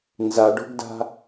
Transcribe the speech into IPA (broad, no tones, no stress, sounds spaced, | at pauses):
n z a ɖ o̤ ɡ d a̤